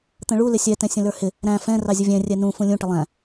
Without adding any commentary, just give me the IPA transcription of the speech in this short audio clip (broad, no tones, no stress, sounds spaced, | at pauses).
t̪ ə̃ ɭ u l ɪ sʲ ɛ t ɛ̃ sʲ ə̃ l ə˞ h ɪ | ɾ æ̃ f ɛ̃ r ɑ zʲ ʊ vʲ ɛ̃ rʲ ɛ n ũ f ũ lʲ ũ ʈ ə lˠ æ̃